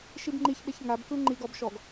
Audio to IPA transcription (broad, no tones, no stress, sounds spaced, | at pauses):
ʃ i b ŋ͡ǃ i ç ɓ e ç ŋ a b k ɯ ŋ͡ǃ i ɡ ɔ b ʃ ɔ ɡ